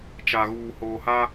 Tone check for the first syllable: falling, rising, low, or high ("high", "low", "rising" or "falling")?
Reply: low